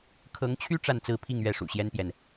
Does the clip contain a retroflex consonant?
yes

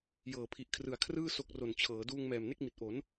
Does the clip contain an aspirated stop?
yes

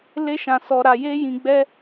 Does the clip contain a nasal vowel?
yes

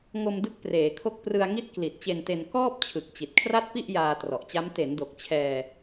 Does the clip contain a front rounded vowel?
no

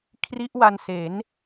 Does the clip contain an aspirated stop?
yes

